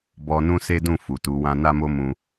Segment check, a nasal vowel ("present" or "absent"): present